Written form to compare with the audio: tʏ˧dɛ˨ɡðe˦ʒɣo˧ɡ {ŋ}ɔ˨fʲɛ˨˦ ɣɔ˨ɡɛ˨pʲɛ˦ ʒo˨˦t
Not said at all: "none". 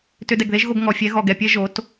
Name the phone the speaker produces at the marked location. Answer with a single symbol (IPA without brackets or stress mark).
ŋ